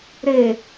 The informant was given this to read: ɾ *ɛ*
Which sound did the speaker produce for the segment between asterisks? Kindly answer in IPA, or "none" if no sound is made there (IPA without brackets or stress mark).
e